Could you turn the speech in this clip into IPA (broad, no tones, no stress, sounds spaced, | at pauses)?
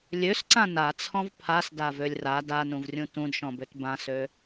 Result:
lʲ ø s ǀ ã n a t͡sʰ ɔ̃ v pʰ a s d a v ø lʲ r a d a n ũ v rʲ ũ t ũ d ʃ ɔ̃ b ø t b ã s ø